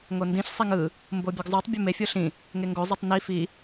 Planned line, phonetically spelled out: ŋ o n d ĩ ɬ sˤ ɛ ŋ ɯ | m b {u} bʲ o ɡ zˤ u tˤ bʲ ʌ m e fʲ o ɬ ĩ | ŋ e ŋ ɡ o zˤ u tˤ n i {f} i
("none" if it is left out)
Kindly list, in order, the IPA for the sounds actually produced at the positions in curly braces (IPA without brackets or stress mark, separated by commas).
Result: o, f